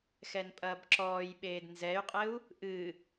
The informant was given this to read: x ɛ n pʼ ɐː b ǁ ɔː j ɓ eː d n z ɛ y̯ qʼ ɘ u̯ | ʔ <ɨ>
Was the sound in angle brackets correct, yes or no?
yes